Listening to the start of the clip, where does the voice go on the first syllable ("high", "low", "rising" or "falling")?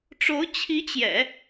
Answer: rising